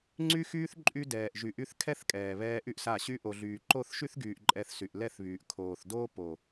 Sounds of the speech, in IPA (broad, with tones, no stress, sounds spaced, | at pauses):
ŋ͡ǀ y˦ x yː˦ θ ǃʼ y˧ d ɛː˨ ʔ ʒ y˨ ʔ y˧ θ kʰ ɛ˦ θ kʼ ɛː˨ β ɛː˧ ʔ y˦ ʔ s a˦˨ ɕ y˦ ʔ o˨ ɮ yː˨ ǃ o˦˨ θ ʃ y˦ θ ɡ yː˨ ʔ ǃʼ ɛ˧ θ s y˨ ʔ l ɛ˦˨ θ β yː˨ ʔ kʰ oː˨ θ d oː˦ p o˨